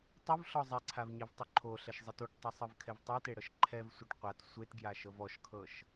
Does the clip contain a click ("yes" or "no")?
yes